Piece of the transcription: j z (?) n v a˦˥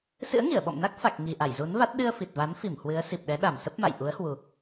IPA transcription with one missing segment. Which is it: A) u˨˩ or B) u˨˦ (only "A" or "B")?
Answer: B